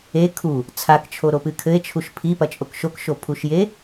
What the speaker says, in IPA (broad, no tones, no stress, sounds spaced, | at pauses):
e kʰ u | t͡sʰ a k t͡ʃʰ o ɾ o p ɨ kʰ ɘ e̯ t͡ʃʰ u ʃ pʰ i p ɐ t͡ʃʼ o k ʃ o k ʃ o pʰ u ʃ j e